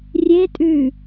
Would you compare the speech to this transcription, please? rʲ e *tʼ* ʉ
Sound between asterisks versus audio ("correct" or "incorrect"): correct